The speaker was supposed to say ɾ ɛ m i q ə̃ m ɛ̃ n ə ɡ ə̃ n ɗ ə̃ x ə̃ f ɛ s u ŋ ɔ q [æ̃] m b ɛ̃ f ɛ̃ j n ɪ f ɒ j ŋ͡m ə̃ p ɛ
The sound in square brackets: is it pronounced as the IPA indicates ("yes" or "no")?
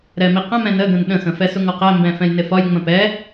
no